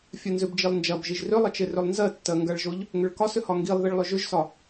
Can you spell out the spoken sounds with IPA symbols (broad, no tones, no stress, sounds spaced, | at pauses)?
fʲ ɜ n z ʏ b d͡ʒ i lˠ n d͡ʒ ɐ b ʒ i ʒ r ʏ lˠ ə t͡ʃ e r ʏ lˠ n z ɜ tː ɜ ŋ ɡ ɐ ɭ ʒ o ʎ | ŋ ʏ ɭ k ɒ s ʏ h ɒ ŋ ɡ i lˠ ð i ɭ lˠ ʏ ʒ ʏ ʒ s ɒ